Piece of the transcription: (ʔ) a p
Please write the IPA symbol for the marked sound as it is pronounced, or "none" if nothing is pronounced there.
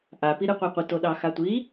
ʔ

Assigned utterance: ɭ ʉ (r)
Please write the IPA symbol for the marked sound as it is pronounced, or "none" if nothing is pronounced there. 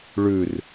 r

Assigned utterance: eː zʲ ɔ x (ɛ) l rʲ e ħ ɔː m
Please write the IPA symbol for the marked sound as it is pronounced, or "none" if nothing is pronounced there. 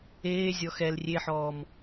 ɛ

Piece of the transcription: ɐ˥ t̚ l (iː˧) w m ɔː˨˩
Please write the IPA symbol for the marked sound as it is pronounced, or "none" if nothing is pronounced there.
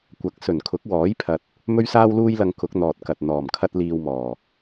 iː˧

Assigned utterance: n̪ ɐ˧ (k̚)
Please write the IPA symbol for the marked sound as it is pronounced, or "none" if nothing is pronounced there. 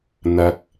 k̚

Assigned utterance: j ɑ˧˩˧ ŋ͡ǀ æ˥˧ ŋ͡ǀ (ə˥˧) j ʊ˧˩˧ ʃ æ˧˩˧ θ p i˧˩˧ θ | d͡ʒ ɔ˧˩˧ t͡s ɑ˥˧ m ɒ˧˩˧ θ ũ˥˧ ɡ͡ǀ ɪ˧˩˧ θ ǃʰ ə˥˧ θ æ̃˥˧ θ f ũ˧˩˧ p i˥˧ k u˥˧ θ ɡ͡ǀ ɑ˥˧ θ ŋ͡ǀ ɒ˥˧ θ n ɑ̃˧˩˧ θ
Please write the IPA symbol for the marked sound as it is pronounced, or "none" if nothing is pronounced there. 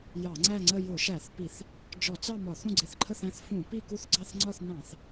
ə˥˧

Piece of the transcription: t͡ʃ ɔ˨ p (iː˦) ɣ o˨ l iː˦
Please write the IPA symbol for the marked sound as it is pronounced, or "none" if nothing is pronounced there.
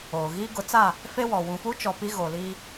i˦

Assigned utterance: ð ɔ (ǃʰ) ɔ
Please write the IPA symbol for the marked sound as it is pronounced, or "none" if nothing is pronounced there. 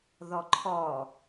ǃʰ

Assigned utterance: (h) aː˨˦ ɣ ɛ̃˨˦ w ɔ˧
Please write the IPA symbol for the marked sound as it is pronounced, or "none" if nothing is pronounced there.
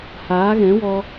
h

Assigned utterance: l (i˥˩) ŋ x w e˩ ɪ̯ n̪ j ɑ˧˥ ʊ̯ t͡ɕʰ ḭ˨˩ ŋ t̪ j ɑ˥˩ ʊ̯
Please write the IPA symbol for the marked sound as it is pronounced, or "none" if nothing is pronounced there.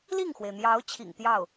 i˥˩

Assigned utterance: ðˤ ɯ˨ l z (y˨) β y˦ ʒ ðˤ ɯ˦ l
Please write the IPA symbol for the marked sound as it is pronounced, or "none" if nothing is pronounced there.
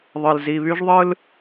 i˨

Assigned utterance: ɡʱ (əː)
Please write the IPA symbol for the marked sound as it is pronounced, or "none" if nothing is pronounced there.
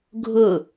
ʊː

